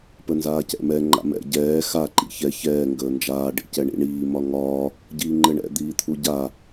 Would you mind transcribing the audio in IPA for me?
p ə n z aː c ɛ̰ m ɛ ŋ͡ǃ a̰ m ɛ̰ ɟ ɛː x a ǃ ḭ ç ɛ ç ɛː ŋ ɡ əː n d͡ʒ aː ɖ ḭ c ɛ ɳ ḭ ɳ iː m ɒ ŋ ɒː | ɟ iː ŋ͡ǃ ɘ ɳ ɛ̰ d̪ iː t̪ʰ u ɟ a

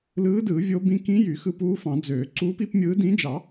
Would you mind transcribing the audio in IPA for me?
l ɯː˧˥ d ɯː˨˩˦ vʲ o˧˥ b ĩ˧˥ k ĩ˧˥ j y˨˩˦ x ɯ˧˥ p uː˧˥ f ɑ̃˨˩˦ d͡z øː˨˩˦ ǀ uː˧˥ p i˧˥ p mʲ ɯː˧˥ d ĩ˧˥ d͡ʒ ɑ˨˩˦

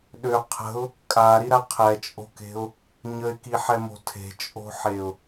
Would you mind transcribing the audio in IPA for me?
ɗ ø qʰ ə̤ ʊ̯ | kʼ a ɾ i ɾ a qʰ ɛ t͡ʃʼ o̤ k e̤ ʊ̯ | ɲ ə ɪ̯ k i ħ ɛ m o̤ tʰ e̤ t͡ʃʼ o̤ ħ e ʊ̯

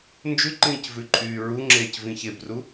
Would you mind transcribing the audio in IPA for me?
n d͡ʒ ʉ ǃ ĩː c v ʉ ǃʼ yː ɹ u ŋ͡ǁ eː c v ĩ ç e b r u

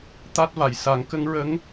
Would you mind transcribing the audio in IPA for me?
t̪ a˦˥ t̚ v a˨˩ j s a˨˩˦ ŋ k ə˧˥ ŋ ɹ ə˧˥ ŋ

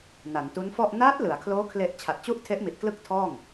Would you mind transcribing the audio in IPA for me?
n a˩˦ n t u˦˥ n f ɔ˥˩ ʔ n aː˦˥ t̚ l ɯ˩˦ a̯ kʰ l oː˦˥ kʰ l e˨˩ ʔ t͡ɕʰ a˨˩ t̚ t͡ɕ u˥˩ ʔ tʰ e˦˥ ʔ m i˨˩ t̚ k l ɯ˥˩ k̚ tʰ ɔː˥˩ ŋ

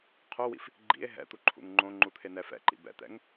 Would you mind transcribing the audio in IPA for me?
qʰ o w ḭ f | ɡ͡ǃ ḭ e̯ ɦ ɛ̰ t̪ u ǃʰ ṵ ŋ ŋ͡ǃ õ ŋ͡ǃ u t̪ʰ e n ɛ f ɛ̰ ǃ ḭ b ɛ̰ t̪ ɛ̰ ŋ

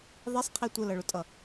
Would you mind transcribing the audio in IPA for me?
ðˤ i sˤ qʰ i tʷ ə l ʌ ɭ ʊ tʼ ʌ

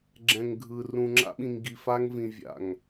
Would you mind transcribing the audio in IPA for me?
ɡ͡ǁ ɛ̃˨ ŋ ɡʱ ɯ˨ r ũ˨ ŋ͡ǁ a̰˦ ɓ ĩ˨ ŋ ɡ i˨ f a˦ ŋ v ĩ˨ vʲ a̰˨ ŋ

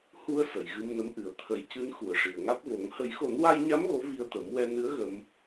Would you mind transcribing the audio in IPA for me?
h u˧ ə̯ s ə˨˩˨ j ɣ ɨ˧ m n ə˧˥ m ʔ ɨ˨˩ ə̯ t̪ʰ ə˨˩ j c ɨ˧˥ n x u˨˩ ə̯ ʂ i˨˩ ə̯ ŋ a˦˥ t̚ v o˨˩˦ ŋ h ə˨˩˦ j x o˨˩˦ n w a˧ j ɲ a˧˥ m ɣ o˧˥ v i˧ ə̯ t̪ ə˨˩˦ m w ɛ˧ n ɨ˧˥ ə̯ ɣ ə˧ m

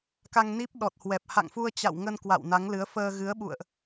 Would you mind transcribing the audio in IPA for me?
k a˧ ŋ n i˦˥ p̚ ɗ ɔ˨˩ t̚ h w ɛ˨˩ p̚ h a̰˧˨ ŋ f u˧ ə̯ t͡ɕ a̰˧˨ w ŋ ə˧ n k w a̰˧˨ w n a˨˦ ŋ l ɨ˨˦ ə̯ f əː˧ ɣ ɨ˨˦ ə̯ ɓ ṵ˧˨ ə̯ ʔ

